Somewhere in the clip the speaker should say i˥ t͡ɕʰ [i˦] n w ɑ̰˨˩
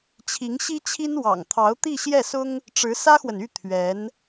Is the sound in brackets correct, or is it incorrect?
incorrect